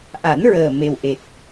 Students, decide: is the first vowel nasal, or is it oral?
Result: oral